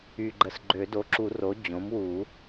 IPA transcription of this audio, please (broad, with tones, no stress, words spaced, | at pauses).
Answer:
yː˨ɡ͡ǃə˨s ɡ͡ǃø˨˩˦do˩˥ǁu˨˩˦ ro˩˥ d͡ʑõ˩˥mwuː˨˩˦